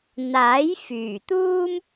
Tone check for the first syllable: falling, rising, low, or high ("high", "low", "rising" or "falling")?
rising